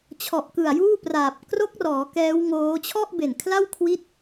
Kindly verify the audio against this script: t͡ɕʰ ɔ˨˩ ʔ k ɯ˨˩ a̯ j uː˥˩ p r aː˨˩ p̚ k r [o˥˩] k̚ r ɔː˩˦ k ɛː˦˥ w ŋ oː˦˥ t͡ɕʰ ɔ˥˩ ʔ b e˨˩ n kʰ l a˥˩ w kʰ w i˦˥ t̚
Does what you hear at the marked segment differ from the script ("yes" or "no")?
yes